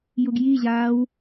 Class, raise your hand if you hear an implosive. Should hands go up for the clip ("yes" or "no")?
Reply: no